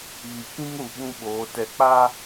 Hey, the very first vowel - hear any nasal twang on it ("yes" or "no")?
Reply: no